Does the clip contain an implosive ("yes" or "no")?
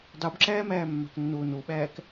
yes